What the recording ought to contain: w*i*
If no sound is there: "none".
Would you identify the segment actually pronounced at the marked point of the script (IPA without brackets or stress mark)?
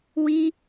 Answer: i